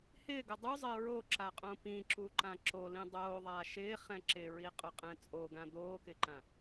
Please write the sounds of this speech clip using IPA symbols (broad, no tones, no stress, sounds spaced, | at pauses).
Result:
h ɪː ɡ ʊ dˤ u zˤ ɪː ɹ o ǁ a qʼ õ p ĩ ǁ u ǃ ã ǁ o l ĩ dˤ oː ðˤ aː ʃ ɪː χ ɛ̃ ǁ ɪ ɹ i qʼ ʊ qʼ ɛ̃ t͡sʼ o ɡ ã d̪ oː k ɪ ǃ ã